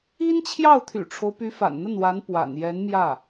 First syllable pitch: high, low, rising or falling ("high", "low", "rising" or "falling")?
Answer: high